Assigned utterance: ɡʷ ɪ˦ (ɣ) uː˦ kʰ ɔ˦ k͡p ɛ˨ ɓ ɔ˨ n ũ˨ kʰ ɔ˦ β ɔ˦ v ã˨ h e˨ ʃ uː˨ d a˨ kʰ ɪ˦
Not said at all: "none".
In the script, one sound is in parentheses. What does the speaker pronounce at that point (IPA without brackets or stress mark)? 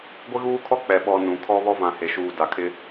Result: ɣ